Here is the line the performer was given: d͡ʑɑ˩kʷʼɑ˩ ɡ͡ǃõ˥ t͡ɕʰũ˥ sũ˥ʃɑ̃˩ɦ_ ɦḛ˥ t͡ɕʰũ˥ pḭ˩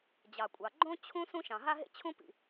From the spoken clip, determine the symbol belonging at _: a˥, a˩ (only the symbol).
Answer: a˥